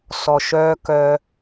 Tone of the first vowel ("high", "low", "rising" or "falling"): low